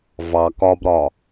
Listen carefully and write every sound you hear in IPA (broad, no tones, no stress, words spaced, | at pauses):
vɑ kɒbɾɒ